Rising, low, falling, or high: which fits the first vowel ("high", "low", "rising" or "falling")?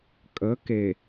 rising